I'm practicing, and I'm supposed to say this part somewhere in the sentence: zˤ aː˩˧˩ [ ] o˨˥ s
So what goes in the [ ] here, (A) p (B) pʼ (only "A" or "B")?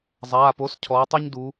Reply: A